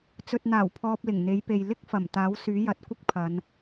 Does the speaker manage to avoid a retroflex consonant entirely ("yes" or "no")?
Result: yes